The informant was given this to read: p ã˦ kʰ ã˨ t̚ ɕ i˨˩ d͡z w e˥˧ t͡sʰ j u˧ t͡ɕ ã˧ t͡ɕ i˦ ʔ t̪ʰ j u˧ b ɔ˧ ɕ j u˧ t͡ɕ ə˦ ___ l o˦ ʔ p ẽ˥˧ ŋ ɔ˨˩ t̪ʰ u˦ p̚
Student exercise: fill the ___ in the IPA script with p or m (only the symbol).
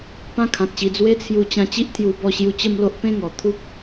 m